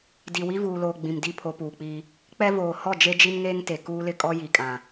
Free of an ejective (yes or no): no